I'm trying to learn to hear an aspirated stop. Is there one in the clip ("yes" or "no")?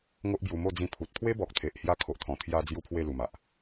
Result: yes